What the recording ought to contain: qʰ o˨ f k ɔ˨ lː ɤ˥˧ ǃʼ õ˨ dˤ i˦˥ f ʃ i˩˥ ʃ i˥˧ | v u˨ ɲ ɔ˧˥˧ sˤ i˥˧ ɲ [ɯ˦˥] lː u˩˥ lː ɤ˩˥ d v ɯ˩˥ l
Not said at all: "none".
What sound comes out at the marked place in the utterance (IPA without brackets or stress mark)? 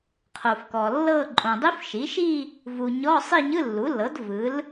ɯ˧˥˧